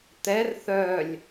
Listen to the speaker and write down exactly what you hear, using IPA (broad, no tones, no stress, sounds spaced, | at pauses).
t̪ ɛ r θ œ lʲ